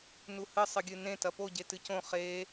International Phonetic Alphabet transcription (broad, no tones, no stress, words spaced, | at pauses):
nuhɨ sˤɨɡʲɨnẽ tɐpo ɟetɨcõ χe